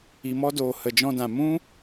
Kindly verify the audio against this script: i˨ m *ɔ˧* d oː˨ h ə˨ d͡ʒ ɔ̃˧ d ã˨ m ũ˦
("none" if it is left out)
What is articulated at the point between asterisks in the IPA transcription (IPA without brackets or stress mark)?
ɔ˧